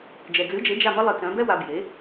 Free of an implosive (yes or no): yes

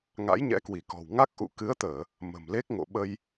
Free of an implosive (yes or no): no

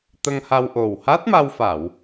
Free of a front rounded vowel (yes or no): yes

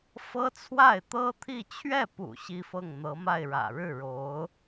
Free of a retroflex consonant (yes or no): no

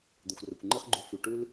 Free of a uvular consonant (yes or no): no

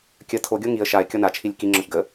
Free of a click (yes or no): no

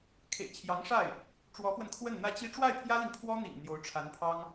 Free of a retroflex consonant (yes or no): no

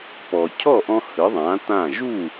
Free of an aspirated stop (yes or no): no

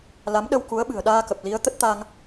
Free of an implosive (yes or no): no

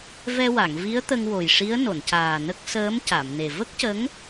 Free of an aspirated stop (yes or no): yes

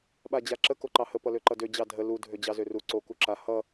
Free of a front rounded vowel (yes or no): no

